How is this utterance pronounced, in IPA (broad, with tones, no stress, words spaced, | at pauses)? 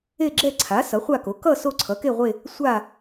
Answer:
e˥˧ɡ͡ǁɛ˥˧ ǀʰa˩˥ sʌ˩˥χʷa˥˧ko˩˥ kʌ˥˧ so˥˧ǀʰʌ˩˥ke˥˧ʁʷe˥˧ | sʷa˥˧